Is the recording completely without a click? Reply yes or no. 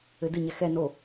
yes